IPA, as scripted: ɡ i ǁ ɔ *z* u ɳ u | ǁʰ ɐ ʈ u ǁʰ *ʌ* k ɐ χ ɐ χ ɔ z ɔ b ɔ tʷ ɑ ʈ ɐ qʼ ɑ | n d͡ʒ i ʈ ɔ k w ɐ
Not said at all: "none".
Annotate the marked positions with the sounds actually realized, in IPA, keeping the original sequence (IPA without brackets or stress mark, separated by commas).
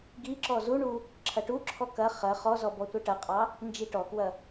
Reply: z, ɔ